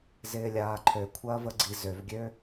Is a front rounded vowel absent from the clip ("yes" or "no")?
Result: no